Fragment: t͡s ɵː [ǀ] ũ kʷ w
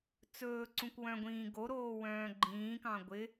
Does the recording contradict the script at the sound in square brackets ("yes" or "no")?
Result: no